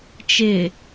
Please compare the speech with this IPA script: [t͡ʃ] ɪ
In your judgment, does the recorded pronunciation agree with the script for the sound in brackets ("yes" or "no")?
yes